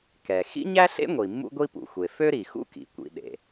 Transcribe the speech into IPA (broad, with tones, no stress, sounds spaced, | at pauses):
k ɛ˩ x ḭ˥ ɲ æ˥ ɬ ḛ˥ ŋʷ i˩ mː ṵ˥ ɡʷ i˥ p ṵ˩ xʷ e˩ f ø˥ ɾ i˩ x ṵ˥ k ḭ˩ kʷ ḭ˩ ɗ ḛ˩